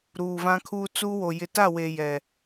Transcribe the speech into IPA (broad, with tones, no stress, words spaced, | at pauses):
ɾuː˨vã˦kʰuː˦ t͡suː˦wo˨ jɪ˨ta˦˨we˨ jɛ˨